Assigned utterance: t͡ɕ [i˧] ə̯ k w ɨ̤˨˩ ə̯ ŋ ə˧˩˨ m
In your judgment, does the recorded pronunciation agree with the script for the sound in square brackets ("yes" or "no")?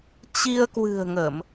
yes